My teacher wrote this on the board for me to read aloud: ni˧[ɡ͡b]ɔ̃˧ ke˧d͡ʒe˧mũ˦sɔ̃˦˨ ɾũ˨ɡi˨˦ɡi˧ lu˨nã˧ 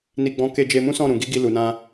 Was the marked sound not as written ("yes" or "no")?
no